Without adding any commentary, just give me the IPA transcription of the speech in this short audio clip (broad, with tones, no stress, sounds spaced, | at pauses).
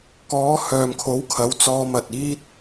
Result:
k ɔː˨˧ h œː˨ m kʰ o˨˥ w kʰ ɐ˨˧ w t͡s ɔː˧ m ɐ˨ t̚ iː˥ t̚